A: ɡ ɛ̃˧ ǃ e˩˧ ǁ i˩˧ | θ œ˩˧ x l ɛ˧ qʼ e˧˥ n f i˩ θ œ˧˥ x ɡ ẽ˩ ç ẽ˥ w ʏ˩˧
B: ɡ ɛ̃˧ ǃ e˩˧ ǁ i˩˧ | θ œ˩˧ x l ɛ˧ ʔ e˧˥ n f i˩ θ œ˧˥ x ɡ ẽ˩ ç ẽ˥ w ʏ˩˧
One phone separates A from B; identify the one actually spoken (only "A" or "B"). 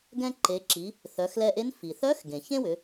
B